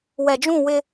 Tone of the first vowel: low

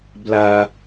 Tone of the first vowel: high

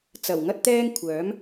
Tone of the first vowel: low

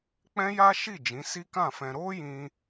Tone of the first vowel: high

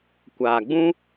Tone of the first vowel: low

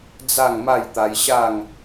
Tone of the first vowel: falling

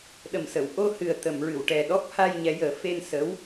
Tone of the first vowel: low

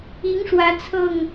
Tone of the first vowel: rising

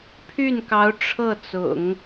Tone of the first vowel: falling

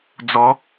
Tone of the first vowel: rising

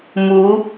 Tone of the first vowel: rising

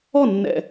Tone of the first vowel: falling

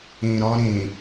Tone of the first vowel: low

